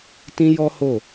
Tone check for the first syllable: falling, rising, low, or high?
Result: high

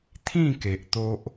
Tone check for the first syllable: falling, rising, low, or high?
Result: falling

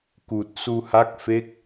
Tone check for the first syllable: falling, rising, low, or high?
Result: low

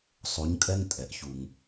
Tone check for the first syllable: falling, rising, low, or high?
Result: rising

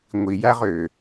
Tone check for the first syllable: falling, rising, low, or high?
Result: low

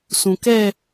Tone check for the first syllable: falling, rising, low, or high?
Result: low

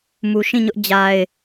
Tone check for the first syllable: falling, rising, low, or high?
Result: low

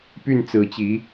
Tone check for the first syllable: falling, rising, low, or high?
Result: falling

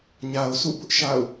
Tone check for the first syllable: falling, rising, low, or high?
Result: low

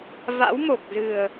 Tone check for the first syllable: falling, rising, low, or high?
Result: rising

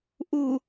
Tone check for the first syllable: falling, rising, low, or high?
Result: low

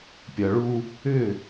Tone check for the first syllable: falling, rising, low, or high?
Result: low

